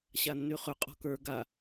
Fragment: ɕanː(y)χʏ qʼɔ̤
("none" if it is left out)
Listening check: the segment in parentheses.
y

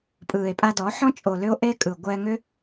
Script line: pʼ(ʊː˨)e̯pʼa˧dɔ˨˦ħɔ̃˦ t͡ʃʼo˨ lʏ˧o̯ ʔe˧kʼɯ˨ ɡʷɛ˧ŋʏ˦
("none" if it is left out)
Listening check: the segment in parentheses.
ɯː˨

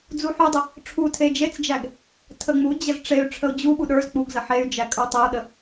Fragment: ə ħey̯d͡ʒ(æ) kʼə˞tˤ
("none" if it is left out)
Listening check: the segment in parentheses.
æ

